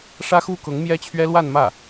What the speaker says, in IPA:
ʂ ä˥ x u˥ k ʊ˧˥ ŋ m j ɛ˥ t͡ɕʰ ɥ ɛ˥ l w a˥˧ n m ä˥˩

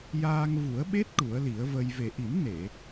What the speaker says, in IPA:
j aː˧ ŋ v u˨˩˦ ə̯ ɓ e˦˥ t̚ ʈ u˨˩˦ ə̯ l i˨˩˦ ə̯ v ə˧ j v e˨˩ ʔ i˨˩˦ m n e˨˩˨

